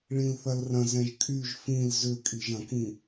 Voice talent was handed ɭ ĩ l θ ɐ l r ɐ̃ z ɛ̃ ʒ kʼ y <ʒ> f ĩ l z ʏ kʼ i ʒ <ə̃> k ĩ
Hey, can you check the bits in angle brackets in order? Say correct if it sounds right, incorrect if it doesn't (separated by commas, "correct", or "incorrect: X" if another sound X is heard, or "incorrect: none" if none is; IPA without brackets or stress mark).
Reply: correct, incorrect: ɐ̃